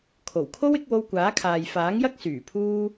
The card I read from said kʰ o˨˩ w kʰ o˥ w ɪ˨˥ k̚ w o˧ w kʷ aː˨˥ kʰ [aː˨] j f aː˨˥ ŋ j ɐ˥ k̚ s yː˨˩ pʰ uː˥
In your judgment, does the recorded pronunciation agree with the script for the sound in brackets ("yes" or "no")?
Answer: yes